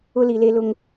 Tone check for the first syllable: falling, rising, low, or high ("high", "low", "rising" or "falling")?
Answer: high